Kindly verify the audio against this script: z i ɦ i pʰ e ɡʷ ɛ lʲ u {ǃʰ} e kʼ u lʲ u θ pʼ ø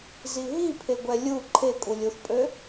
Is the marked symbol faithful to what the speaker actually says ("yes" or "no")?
yes